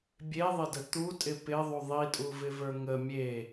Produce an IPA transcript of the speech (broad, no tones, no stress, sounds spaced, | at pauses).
bʲ e ðˤ ɪ d ə t̪ u tʼ ɪ p ɪ ðˤ u ðˤ i tʼ u v ɪ v ə˞ ŋ ə mʲ e